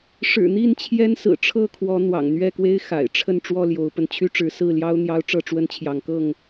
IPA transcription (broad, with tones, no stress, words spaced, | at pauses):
ʂɻ̩˨˩ n̪i˥˨n t͡ɕʰjɛ˦nsɹ̩˨˩ʈ͡ʂʰɤ˥˨kʰwɔ˨˦ n̪wɑ̰˨˩ŋn̪ɥɛ˥˨kwe˦ɪ̯ xa̰˨˩ɪ̯ʈ͡ʂʰə˥˨n ʈ͡ʂwɔ˥˨ljo˨˦ʊ̯pə˧n t͡ɕʰy˦ʈ͡ʂɻ̩˨˦sɹ̩˥˨ ljɑ˦ʊ̯ n̪jɑ˦ʊ̯ʈ͡ʂɤ˥˨ʈ͡ʂwə˦nt͡ɕʰjɑ˨˦ŋ kɤ˥˨ŋ